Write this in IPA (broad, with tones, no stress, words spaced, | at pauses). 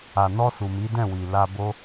a˨nɔ˧ su˨mi˨˦ dɛ̃˦˨wi˨ la˧ bo˦